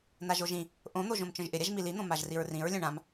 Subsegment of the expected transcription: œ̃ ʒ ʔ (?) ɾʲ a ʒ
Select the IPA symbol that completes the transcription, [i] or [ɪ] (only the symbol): ɪ